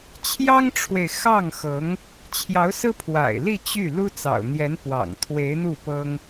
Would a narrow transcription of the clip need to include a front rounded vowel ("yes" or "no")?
yes